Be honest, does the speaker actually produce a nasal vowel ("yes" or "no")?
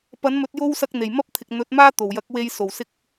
no